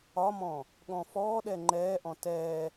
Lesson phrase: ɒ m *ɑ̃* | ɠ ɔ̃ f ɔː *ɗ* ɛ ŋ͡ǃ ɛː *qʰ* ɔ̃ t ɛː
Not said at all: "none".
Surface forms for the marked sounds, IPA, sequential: ɔ̃, ɗ, ʔ

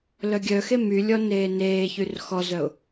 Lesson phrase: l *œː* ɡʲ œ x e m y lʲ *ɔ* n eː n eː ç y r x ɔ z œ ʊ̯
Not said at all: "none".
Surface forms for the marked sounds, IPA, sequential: œ, ɔ

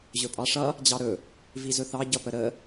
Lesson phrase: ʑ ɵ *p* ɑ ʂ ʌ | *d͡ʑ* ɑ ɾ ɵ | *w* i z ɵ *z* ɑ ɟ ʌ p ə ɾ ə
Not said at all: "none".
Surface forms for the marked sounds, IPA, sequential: pʼ, d͡ʑ, v, θ

